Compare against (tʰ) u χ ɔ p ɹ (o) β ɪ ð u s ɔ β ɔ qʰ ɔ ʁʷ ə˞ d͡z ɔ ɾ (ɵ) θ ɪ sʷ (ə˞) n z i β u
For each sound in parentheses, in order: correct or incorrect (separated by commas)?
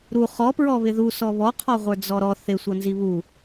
incorrect, incorrect, incorrect, incorrect